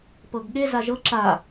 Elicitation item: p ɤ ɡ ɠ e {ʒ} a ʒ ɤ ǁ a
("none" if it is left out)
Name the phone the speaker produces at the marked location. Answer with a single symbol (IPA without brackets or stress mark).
z